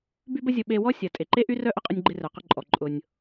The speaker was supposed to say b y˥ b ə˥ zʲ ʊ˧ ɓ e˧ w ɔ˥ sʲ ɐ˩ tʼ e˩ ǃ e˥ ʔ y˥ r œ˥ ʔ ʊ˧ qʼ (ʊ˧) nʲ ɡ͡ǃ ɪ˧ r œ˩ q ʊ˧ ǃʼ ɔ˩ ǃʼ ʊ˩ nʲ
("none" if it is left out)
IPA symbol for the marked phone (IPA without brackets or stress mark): ʊ˧